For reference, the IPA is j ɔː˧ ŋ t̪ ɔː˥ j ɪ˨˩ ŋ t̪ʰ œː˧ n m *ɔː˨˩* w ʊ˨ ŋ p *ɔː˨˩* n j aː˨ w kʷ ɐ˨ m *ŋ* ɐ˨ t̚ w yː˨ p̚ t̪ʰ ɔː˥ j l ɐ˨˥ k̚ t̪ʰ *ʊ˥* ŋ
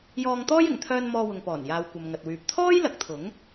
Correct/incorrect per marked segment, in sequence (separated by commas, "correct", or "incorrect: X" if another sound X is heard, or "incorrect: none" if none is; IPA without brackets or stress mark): incorrect: ɔː˧, correct, correct, incorrect: ʊ˨˥